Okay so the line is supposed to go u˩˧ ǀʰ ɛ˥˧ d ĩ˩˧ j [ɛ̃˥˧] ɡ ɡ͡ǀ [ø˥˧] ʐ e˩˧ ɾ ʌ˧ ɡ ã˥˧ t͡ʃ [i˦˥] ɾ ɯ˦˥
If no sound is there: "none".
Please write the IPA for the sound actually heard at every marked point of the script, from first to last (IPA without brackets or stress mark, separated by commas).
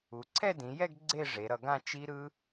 ɛ˥˧, e˥˧, i˦˥